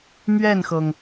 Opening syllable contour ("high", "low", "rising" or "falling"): falling